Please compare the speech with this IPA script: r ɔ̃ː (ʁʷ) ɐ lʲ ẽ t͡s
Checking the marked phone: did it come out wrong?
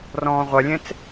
no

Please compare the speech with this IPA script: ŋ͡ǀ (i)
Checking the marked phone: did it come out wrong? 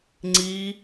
no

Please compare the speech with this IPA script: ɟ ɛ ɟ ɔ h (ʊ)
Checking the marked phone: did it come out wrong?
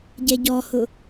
no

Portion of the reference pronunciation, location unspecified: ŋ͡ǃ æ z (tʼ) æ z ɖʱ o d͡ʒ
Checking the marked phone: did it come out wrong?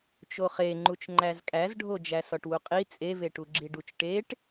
yes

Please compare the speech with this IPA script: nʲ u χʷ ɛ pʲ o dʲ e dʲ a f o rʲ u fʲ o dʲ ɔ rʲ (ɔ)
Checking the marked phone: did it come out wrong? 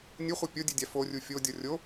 yes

